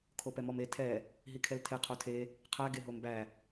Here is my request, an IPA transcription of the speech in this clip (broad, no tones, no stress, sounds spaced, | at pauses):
kʰ o p ɛ m ɔ m e tʰ ɛ | ɦ i kʰ ɛ l tʰ e qʰ o tʰ e | qʰ æ ɡ e ɦ o m b æ